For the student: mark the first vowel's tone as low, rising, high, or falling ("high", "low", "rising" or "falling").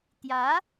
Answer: rising